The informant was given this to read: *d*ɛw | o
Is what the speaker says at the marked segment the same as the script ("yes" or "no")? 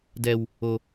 yes